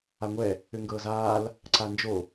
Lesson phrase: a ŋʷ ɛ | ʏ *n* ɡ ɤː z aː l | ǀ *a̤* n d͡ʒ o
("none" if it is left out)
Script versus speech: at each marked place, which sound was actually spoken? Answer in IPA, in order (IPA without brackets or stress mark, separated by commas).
ŋ, a